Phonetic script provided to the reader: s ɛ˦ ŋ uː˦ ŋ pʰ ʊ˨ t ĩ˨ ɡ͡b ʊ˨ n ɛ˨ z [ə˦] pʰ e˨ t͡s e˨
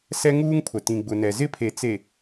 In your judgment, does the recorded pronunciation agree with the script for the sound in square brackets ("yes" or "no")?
no